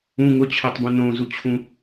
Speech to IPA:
ũ ŋ ʊ t͡ɕʰ ɜ tˤ b ũ n õ z u t͡ɕʰ ũ

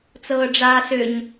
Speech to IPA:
t͡s ɤː ɖ͡ʐ aː s ʏ ɲ

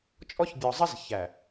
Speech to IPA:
t͡ʃʼ ɔ˦ ç bʲ ɔ˨ zˤ ɪ˦ z ç æ˨

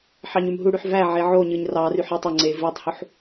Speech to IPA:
ħ ɑ ɲ y m ɦ u ɽ y ħ v æ ʕ e ʕ o ɲ ɯ ɲ r ɑ r y ħ i tˤ o ŋ͡ǀ e v i tˤ h u ħ

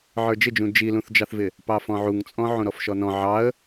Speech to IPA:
ʕ ə˞ d͡ʒ ɪ d͡ʒ ũ d͡ʒ i l ũ θ d͡ʒ ɑ θ v ɪ | p ɑ f ɔ̃ ʕ u ŋ t͡sʼ ɔ̃ ʕ ũ ɾ ɔ f ʃ ɔ n ɔ̃ ʕ ɑ ə̯

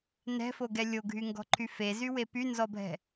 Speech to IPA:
n ɛ̤ f o ɡ ɛ lʲ o ɡʱ y ŋ ɡ ɔ̤ ǃʰ y f e z y w e p y n z ɔ bʱ ɛ̤

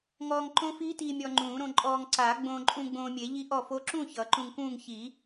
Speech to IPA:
ŋ ɔː˧ ŋ ǃ õ˦˥ f iː˦˥ t iː˧ mʲ ɔ˧ ŋ͡ǃ ũː˨˩˦ ɾ õ˧ ǃʼ ɔː˧ ŋ ǀ aː˨˩˦ ɡ͡b õː˧ ǃʼ ũ˧ ɡ͡b õː˧ mʲ e˨˩˦ ʎ i˦˥ ʔ ɔ˥˨ f o˦˥ ǁ ũ˥˨ ç ʌ˨˩˦ ǃ ũ˧ ŋ k ũː˥˨ ŋ ç i˨˩˦

